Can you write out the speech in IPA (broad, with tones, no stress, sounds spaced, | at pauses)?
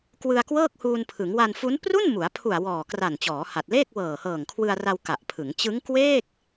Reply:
k w ɯ˧ a̯ k w ɤː˥˩ k̚ h uː˧ n pʰ ɯ˩˦ ŋ w a˧ n f u˦˥ n p r u˥˩ n m u˩˦ a̯ pʰ u˨˩ a̯ w ɔː˨˩ k r a˨˩ n t͡ɕ ɔː˩˦ h a˨˩ t̚ l eː˥˩ k̚ w ɤː˨˩ h ɤː˨˩ ŋ kʰ w ɯ˧ a̯ r a˧ w k a˨˩ ʔ pʰ ɯ˩˦ ŋ t͡ɕ ɯ˦˥ ŋ k w eː˥˩ k̚